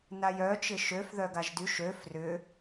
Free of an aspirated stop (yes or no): yes